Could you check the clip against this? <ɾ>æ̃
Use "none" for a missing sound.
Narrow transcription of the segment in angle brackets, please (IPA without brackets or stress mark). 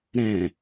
ɾ